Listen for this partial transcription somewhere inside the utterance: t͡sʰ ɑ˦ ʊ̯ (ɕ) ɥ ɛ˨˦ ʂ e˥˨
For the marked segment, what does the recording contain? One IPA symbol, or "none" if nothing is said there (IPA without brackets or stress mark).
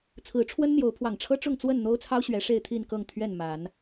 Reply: ɕ